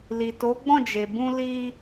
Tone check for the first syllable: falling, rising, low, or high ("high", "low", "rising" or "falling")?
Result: low